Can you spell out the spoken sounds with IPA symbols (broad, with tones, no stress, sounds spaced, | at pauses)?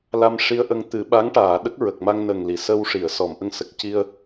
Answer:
l a˧ m ʂ i˧ ə̯ ʔ ə˧ ŋ t̪ ɨ˨˩˦ ɓ a˧˥ ŋ ʈ aː˨˩˨ ɗ ə˦˥ k̚ ɹ ə˨˩ k̚ m a˧ ŋ n ə˨˩ ŋ l i˨˩˨ s ə˧ w ʂ i˨˩˨ ə̯ s ɔ˨˩˨ m ʔ ə˧ ŋ s ə˨˩ k̚ c i˧ ə̯